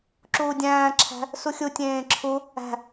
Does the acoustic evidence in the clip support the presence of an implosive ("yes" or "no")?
no